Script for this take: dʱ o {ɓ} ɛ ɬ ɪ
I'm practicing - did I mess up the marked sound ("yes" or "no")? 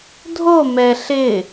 yes